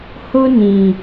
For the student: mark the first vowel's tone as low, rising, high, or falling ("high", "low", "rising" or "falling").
high